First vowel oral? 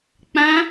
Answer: no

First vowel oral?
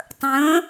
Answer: no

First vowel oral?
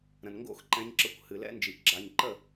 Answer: no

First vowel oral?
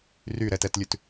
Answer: yes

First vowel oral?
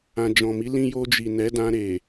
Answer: no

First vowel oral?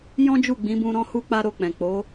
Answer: no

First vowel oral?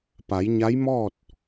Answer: yes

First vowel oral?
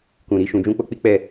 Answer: no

